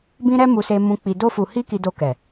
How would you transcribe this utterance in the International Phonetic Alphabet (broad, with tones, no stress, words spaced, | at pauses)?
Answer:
bĩ˦ɾɛ˦mu˧se˧ mũ˧k͡pi˧ do˦fu˧ hi˦ki˧do˧ kɛ˨